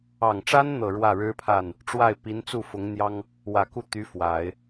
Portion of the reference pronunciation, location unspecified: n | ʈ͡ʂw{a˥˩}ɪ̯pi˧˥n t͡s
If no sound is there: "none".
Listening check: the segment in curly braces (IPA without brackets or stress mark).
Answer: a˥˩